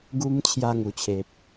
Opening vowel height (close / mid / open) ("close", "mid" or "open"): close